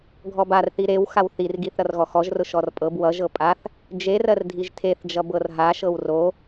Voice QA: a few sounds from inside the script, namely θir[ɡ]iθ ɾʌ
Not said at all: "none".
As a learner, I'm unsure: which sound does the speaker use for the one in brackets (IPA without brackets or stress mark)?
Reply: ɡ